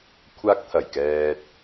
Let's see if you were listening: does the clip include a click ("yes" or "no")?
no